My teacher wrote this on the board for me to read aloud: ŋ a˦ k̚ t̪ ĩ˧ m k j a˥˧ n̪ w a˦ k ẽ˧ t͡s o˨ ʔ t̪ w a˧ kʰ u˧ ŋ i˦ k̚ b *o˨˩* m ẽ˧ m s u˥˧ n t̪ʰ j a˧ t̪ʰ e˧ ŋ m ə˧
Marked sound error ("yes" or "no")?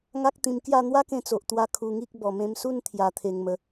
yes